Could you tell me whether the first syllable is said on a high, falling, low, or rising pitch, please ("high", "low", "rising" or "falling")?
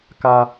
low